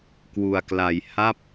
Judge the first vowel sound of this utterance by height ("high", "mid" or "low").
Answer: high